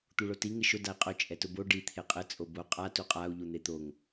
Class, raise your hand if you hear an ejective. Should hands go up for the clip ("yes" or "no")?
yes